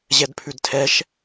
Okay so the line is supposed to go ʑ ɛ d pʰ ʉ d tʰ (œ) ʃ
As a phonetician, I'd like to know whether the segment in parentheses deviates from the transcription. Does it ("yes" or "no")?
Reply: yes